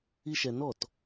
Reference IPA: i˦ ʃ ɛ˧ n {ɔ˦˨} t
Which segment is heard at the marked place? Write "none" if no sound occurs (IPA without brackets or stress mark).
ɔ˦˨